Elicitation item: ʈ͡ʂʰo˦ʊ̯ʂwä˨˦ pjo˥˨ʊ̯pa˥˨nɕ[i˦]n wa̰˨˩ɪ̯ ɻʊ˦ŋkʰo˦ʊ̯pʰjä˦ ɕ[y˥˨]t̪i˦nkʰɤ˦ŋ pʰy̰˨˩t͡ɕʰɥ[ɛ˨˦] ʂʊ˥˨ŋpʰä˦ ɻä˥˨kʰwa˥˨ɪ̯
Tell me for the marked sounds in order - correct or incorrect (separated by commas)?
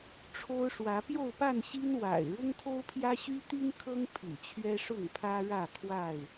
correct, incorrect, incorrect